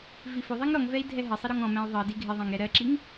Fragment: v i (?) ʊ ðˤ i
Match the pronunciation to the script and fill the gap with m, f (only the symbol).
f